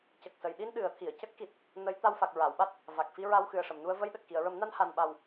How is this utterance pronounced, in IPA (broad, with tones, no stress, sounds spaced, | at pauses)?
c ə˨˩ k̚ s ə˨˩˨ j ɗ i˧ n ɗ ɨ˨˩˦ ə̯ t̪ʰ i˨˩˨ ə̯ c ə˦˥ k̚ x i˨˩ t̚ | n ə˧˥ j t̪ a˧ w f a˨˩ k̚ ɹ a˨˩˨ w ɓ a˦˥ t̚ | v a˨˩ k̚ f i˧ ɹ a˧ w x ɨ˨˩ ə̯ ʂ ə˨˩˨ m n u˧ ə̯ v ə˧ j ɗ ə˨˩ k̚ x i˨˩˨ ə̯ ɹ ə˨˩˦ m n a˧ n h a˨˩ n ɓ a˨˩ w